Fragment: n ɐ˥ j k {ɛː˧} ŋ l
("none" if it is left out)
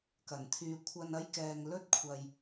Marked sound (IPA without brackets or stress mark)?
ɛː˧